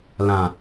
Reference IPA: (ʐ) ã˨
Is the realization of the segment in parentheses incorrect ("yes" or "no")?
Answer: yes